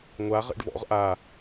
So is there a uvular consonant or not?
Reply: yes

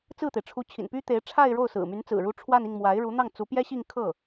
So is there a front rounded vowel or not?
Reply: yes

